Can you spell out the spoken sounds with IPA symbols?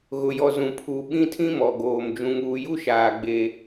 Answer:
ɣ ʊ˨ j ɔ˨ z ũ˨ pʰ u˨ ɓ ĩ˦ tʰ ĩ˦ m ɔ˨ ɡ oː˨ m d͡ʒ ũ˨ ŋ uː˨ j u˦ ʃ aː˨ ɡ͡b e˦

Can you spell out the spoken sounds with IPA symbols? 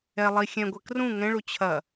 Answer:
ɛ lˠ i xʲ ɛ̃ ɡʷ ɛ k r ũ ŋ ɛ̃ ɭ u t͡ɕʰ ɐ

